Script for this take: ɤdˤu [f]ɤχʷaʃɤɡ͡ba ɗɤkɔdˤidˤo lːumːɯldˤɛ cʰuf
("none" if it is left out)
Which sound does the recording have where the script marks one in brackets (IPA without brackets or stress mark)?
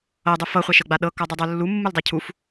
f